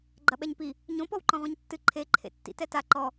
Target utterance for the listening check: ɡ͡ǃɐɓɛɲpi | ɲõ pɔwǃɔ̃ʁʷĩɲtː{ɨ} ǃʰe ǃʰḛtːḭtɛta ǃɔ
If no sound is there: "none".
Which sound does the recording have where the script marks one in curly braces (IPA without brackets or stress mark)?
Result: ɨ